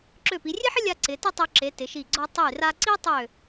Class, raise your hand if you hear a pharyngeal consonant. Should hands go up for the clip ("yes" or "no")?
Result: yes